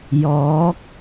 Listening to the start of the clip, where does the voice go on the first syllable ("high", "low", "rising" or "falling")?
rising